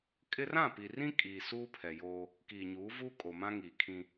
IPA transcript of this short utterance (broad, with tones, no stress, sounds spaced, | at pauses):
kʼ ɪ˦ r ã˦˨ p i˨ r ĩ˦ kʼ iː˨ s uː˦ pʰ ɛ˨ j oː˦ | k iː˨ ɲ uː˨˦ v uː˦ kʼ o˨ m ã˦ ŋ iː˨ kʰ ĩ˦